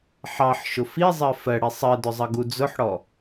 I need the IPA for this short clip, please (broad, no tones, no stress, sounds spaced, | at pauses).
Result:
ħ ɑ ħ ʃ ʊ f i zˤ ɜ f ɜ ɽ i sˤ ɜ d ʊ zˤ ʌ ɡ u d͡z ʊ ħ ɽ ɔ